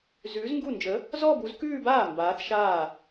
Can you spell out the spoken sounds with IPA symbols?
z ʉː˨˥ z ŋ ɡ u˥˩ n d͡ʒ ə˨˥ | z ɔ˥˧ b u˨˥ z k ʉː˥˧ b aː˥˩ m b aː˨˥ θ ʃ aː˥˩

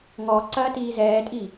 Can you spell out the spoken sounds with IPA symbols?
ŋ ɔ ǀ ɐː t iː z ɛː tʼ i

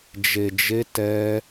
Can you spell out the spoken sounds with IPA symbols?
d͡ʒ e˧ d͡ʒ e˦ t ɛ˦

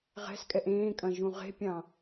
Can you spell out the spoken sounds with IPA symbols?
ʁ ɛ̤ s kʼ ɛ ʔ ẽː kʼ ɐ̃ ʒ ũ ʁ e̤ pʲ ɑ̃

